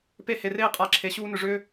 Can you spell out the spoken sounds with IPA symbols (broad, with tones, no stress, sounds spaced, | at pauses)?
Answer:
p e˦ h e˧ r eː˦ qʼ a˧ ǁʰ e˧ ɕ uː˦ n ʏ˧ ʐ ʏː˦